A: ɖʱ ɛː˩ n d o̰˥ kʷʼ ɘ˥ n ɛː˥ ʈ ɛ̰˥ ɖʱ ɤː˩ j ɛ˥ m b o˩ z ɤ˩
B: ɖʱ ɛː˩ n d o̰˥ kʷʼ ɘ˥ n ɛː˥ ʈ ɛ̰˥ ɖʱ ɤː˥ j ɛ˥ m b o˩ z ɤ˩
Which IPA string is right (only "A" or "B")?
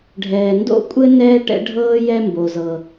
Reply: B